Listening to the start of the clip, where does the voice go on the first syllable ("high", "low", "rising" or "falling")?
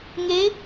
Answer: rising